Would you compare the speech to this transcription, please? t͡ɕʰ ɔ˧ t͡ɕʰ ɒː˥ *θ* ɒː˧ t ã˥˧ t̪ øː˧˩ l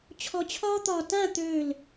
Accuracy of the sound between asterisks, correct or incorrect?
incorrect